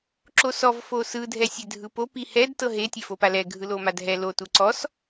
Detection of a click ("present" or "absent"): present